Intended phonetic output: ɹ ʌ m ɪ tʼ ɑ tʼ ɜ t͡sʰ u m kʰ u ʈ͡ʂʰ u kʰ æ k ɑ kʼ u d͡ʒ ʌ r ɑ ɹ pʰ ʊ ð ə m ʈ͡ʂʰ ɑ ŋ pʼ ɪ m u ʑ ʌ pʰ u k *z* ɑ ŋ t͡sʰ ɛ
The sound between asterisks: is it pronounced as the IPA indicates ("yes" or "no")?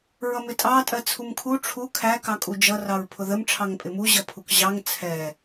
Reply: no